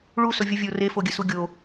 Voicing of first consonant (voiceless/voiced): voiced